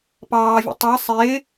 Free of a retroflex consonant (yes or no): yes